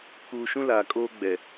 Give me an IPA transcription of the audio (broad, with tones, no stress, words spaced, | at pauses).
kuː˨ʃũ˦ laː˨kʼoː˦ ɡ͡bɛ˨